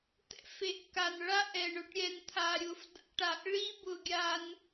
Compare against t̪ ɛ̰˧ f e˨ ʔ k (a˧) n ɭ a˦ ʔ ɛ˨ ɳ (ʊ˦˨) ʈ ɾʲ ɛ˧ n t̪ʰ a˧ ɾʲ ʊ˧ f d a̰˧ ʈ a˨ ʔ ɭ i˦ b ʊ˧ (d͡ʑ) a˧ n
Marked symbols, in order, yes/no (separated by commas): no, no, no